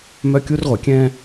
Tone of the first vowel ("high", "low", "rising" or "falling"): high